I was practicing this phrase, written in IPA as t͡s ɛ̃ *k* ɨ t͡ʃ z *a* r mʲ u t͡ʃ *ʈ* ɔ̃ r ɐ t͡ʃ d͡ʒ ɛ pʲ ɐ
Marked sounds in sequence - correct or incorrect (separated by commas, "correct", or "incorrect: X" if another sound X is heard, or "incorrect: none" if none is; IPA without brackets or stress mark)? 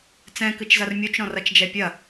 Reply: correct, incorrect: ɐ, incorrect: ɾ